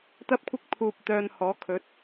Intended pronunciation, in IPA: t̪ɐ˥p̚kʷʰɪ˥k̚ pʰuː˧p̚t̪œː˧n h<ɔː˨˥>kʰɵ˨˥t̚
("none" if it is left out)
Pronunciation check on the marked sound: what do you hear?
ɔː˨˥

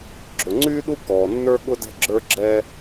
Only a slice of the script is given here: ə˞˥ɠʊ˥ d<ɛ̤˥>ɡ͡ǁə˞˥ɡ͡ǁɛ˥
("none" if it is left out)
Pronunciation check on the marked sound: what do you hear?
ɛ̤˥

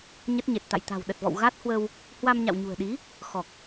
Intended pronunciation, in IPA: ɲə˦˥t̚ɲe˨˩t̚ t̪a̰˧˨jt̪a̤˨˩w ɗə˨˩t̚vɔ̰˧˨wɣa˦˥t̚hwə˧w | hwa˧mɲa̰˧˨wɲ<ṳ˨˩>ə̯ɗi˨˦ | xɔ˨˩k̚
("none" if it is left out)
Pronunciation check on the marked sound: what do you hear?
ṳ˨˩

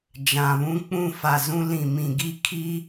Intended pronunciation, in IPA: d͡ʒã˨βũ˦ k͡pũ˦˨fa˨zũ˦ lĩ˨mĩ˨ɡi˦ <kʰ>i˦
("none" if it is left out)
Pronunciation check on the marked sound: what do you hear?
kʰ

